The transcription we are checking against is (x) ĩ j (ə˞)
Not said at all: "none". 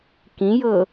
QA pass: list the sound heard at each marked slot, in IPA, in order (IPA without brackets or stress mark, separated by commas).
k, ɤ